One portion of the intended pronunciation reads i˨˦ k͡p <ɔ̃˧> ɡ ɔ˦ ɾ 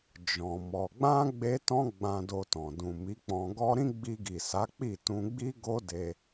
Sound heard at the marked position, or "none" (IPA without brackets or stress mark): ɔ̃˧